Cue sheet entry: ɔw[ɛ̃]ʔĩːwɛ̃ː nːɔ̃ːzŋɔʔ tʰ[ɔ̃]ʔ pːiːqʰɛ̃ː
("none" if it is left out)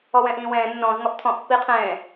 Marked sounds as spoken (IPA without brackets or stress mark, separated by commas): ɛ̃, ɔ̃